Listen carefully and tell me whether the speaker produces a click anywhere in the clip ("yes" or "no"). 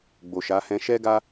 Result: no